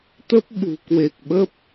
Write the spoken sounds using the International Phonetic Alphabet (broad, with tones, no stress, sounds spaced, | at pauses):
t̪ ə˦˥ p̚ ɓ ṳ˨˩ k w e˨˩ k̚ ɓ ə˦˥ p̚